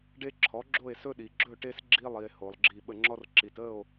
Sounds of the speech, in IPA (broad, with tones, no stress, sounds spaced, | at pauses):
ɖ e˦ ǁʰ ɔ˩˥ ɡ͡ǁ o˥˨ e̯ s ɵ˦ ɗ i˩ ɡ͡ǁ ɵ˥˨ ʈ e˦ s ɡ͡ǁ i˦ lˠ i˩ e̯ h o˩ lˠ ɡ͡ǁ i˧˩ ɓ ə˧˩ ŋ͡ǁ ɔ˦ r ǁ i˩ t ə˥˨ o̯